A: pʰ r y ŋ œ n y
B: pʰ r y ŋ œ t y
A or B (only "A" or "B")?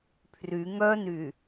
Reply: A